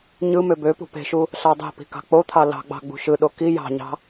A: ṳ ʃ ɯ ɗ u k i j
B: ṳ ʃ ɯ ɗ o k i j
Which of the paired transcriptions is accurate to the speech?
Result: B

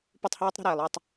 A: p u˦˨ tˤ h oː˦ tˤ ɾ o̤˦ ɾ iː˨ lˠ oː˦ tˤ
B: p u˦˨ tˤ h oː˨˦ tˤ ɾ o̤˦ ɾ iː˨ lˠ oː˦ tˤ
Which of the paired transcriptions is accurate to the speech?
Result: A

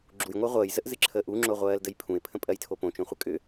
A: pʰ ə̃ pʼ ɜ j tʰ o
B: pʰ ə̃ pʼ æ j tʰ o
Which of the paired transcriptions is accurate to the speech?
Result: A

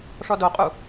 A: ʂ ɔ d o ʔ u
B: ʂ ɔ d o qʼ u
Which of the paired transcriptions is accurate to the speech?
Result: B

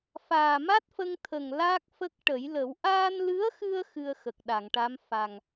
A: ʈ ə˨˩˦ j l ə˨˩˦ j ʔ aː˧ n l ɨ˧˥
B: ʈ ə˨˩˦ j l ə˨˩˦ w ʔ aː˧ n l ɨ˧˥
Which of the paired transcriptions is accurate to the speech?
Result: B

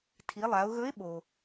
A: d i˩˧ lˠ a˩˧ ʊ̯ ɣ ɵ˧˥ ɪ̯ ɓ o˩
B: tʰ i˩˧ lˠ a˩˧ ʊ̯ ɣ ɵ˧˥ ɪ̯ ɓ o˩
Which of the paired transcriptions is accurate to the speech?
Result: B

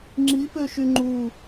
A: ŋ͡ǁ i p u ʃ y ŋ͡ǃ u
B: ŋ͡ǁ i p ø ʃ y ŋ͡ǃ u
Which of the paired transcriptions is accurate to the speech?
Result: B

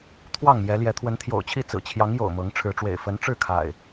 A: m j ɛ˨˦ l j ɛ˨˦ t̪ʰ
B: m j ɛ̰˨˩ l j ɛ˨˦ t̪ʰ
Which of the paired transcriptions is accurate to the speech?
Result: A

